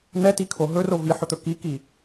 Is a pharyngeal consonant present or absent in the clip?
present